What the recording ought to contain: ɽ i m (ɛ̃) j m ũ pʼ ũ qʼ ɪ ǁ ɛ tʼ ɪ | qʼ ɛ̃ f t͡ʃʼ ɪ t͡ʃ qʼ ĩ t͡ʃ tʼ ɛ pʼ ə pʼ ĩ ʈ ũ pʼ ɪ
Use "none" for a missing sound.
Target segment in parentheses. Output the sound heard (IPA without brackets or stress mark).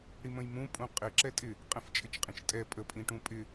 ə̃